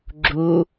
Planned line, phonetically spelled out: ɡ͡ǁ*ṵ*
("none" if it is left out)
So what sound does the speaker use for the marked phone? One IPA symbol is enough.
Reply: u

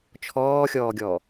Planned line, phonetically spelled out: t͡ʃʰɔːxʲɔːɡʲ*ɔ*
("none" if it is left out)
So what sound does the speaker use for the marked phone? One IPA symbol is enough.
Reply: ɔ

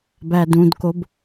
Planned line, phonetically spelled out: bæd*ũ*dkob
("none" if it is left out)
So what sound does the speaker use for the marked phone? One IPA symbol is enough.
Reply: ũ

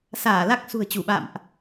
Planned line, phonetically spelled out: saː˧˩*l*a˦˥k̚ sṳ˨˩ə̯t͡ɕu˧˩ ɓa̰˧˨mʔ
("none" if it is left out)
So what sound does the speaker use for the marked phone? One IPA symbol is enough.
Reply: l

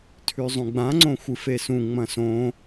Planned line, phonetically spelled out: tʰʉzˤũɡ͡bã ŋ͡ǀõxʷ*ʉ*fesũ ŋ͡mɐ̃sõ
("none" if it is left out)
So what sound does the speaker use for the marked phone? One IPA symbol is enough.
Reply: ɨ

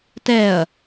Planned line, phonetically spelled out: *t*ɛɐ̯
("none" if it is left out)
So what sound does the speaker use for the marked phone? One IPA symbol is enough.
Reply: t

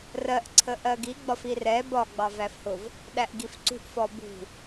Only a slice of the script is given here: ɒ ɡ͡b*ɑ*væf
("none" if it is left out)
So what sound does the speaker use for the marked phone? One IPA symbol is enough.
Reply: ɑ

